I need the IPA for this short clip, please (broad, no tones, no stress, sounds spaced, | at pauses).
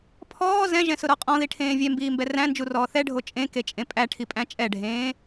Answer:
pʰ ɔː z ɛ̃ ʒ ɛ̃ s ʊ ɾ ɔ qʼ ɔ̃ ð i ʈʰ ẽː vʲ ɛ m b iː m b ɛ r æ̃ n d͡ʒ u r ɔː θ ɛ ɖʱ o t͡ʃʼ ẽ k e t͡ʃʼ ẽ pʼ æ ʈʰ i pʼ æ̃ t͡ʃʼ ɛ ɖʱ ẽː